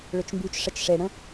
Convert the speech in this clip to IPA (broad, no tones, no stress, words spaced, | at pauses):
ɭʏt͡ʃmbyt͡ʃʂət͡ʃ ʂeɽə̃